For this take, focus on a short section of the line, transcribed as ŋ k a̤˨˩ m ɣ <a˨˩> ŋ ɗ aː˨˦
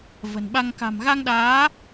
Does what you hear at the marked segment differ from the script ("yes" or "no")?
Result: yes